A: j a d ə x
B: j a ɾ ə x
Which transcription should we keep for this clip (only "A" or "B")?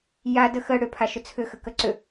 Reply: A